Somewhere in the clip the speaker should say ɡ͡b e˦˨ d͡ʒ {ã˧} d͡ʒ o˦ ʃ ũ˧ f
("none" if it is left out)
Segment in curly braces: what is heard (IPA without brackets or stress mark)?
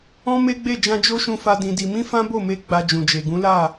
ã˧